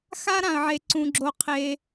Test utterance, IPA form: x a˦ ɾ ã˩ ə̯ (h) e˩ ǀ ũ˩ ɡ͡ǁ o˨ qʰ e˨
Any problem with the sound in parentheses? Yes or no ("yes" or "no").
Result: yes